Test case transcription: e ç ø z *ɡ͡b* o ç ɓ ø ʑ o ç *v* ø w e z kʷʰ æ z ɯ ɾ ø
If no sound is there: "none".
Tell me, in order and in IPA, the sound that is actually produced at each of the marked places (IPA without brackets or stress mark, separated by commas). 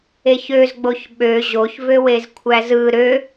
ɡ͡b, v